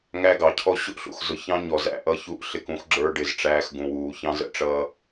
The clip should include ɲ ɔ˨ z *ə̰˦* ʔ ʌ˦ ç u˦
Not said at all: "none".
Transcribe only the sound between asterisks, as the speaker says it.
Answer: æ̰˦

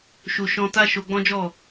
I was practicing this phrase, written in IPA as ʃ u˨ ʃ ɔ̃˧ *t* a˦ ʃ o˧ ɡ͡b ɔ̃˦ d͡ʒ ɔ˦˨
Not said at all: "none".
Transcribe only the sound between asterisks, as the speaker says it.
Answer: t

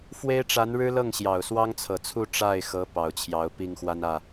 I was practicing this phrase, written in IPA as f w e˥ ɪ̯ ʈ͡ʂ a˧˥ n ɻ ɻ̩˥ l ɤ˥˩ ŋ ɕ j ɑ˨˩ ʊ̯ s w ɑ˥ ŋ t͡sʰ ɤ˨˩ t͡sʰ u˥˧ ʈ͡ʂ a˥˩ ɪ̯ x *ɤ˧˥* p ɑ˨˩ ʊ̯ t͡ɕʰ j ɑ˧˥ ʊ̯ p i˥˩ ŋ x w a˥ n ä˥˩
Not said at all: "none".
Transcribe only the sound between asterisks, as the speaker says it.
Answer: ɤ˧˥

